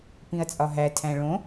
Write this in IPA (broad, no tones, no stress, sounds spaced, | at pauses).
p ĩ ɐ̯ t͡sʼ ɒ ɦ æ tʰ æ̃ ɭ õ